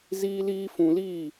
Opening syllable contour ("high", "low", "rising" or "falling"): high